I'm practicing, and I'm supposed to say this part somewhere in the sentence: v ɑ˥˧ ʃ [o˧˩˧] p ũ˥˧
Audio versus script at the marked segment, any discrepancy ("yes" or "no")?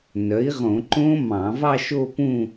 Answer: yes